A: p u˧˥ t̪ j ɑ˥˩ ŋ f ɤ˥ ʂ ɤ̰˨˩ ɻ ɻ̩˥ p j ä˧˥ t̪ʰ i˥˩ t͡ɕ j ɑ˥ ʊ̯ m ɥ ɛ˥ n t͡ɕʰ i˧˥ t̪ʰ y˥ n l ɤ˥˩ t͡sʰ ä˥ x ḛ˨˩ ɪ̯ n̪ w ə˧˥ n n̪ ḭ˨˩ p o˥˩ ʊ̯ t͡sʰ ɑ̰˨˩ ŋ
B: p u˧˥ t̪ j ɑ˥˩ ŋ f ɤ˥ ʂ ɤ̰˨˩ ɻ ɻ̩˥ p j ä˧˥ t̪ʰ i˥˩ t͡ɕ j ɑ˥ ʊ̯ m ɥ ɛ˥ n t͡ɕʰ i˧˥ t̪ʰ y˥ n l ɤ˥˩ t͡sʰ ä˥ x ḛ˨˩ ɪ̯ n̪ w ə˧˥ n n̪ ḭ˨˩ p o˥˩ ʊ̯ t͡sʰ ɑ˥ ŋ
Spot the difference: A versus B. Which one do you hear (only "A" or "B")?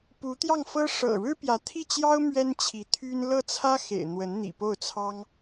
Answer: B